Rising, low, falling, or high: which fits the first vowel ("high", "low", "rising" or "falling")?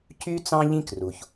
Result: high